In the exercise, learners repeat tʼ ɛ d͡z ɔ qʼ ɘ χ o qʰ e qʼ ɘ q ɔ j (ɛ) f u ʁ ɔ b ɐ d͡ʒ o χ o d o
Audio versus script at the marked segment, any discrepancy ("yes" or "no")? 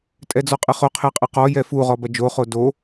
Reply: no